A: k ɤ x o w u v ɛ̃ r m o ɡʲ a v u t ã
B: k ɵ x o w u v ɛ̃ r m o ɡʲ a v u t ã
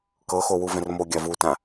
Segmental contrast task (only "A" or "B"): A